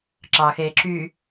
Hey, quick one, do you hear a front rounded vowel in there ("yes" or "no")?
yes